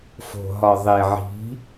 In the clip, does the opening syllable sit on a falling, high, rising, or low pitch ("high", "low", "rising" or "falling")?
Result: low